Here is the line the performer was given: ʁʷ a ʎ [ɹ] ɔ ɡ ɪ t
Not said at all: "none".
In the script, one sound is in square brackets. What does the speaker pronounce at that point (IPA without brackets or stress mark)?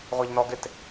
n